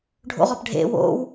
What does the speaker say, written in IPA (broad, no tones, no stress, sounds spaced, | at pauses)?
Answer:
ɖʱ o̰ ʁ ɒ p ɖʱ ḛ w o̰ w